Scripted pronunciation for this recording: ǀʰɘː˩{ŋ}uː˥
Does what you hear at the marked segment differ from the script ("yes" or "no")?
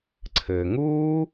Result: no